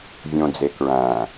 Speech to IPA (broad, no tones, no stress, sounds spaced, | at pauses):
vʲ õ d͡z e k ɹ æ̃